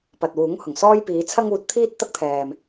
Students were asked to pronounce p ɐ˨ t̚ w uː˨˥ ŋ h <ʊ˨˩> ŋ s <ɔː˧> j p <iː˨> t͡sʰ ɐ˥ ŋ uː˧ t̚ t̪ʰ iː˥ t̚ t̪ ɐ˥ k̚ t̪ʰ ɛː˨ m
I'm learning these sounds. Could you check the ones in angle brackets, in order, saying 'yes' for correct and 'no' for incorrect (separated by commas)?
yes, no, no